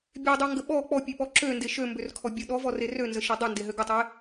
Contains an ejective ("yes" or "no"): no